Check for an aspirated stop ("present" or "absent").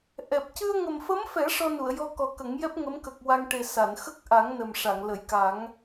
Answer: absent